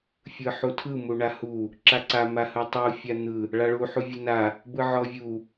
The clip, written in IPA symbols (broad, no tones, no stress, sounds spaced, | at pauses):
fʲ ɯ ħ u tʰ ɯ m u ɳ a h u | ǁ a ǀ a m a h ɯ tˤ u fʲ a n̪ ɯ | ɭ a ɭ u ħ u vʲ ɯ n a | b ɯ ʕ ɔ vʲ u